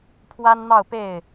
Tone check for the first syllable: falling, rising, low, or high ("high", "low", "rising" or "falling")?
high